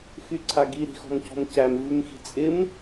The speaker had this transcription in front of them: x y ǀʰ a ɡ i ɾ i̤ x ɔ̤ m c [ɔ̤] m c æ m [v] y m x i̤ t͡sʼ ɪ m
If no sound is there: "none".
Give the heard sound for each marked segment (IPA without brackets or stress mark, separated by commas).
ɔ̤, v